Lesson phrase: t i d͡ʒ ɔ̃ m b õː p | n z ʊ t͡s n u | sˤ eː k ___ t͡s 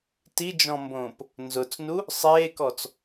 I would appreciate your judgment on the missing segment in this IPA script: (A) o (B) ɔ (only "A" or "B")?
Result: B